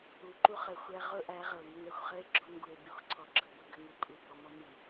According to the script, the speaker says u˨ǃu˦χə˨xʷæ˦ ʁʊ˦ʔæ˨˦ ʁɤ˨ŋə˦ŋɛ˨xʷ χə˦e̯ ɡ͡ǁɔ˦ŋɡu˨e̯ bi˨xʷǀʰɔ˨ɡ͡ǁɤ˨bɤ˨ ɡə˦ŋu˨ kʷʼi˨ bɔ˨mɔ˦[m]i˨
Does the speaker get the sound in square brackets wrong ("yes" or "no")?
no